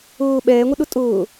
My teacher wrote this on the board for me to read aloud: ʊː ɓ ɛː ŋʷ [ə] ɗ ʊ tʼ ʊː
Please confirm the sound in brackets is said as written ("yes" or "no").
yes